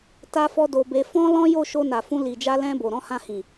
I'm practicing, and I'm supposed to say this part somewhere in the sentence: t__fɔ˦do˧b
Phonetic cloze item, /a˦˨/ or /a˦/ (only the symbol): a˦